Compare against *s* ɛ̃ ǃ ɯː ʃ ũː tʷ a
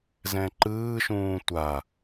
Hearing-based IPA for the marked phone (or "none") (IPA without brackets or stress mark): z